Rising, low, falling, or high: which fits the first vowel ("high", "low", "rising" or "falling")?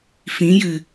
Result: rising